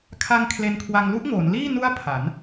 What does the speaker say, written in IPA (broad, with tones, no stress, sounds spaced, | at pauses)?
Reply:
kʰ a˧ ŋ kʰ l e˧ n kʰ w a˧ ŋ l u˦˥ ʔ ŋ oː˩˦ n l iː˥˩ n u˦˥ a̯ pʰ a˩˦ n